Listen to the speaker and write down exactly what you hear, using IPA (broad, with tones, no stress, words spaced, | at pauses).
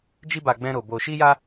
d͡ʒi˦ba˧ ɡ͡bɛ̃˦ɾo˧ bo˧ʃi˦ja˦